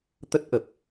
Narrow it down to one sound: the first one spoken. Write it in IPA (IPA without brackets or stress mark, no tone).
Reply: t̪